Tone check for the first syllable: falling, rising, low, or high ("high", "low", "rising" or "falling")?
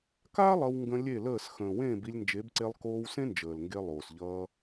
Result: high